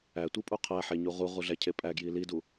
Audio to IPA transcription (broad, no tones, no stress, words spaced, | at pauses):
ætʷi pʼuqʰæħe ɲuʁuʁu ɮæcʰepʼæɡji lidu